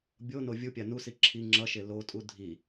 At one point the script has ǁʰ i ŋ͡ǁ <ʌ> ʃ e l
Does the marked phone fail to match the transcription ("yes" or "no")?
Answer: no